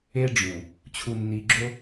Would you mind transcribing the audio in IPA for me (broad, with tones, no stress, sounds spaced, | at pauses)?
e˦ ɖ͡ʐ ũ˨ | t͡ɕʰ u˨ nː i˨ ɡ͡ǁ o˦